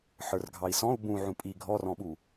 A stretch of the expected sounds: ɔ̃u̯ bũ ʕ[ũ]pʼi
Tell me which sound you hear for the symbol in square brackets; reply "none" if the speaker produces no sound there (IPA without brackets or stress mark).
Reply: ũ